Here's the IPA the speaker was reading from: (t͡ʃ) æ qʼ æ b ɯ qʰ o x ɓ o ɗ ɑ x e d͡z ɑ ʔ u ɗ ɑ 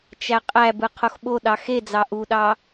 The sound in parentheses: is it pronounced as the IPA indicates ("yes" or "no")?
yes